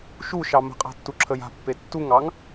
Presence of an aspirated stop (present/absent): present